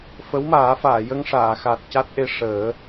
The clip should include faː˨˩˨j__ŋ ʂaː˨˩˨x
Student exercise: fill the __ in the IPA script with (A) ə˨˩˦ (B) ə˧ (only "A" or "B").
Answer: B